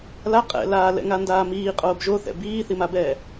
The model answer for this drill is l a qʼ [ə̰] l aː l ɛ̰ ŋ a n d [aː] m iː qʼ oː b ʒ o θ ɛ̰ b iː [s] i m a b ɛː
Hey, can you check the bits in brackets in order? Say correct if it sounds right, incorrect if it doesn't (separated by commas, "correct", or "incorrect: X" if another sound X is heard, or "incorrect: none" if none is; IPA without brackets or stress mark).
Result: incorrect: ɛ̰, correct, incorrect: θ